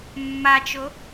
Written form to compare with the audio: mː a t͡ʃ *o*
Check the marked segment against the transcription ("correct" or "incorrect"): correct